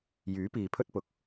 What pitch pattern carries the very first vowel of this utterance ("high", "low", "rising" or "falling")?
rising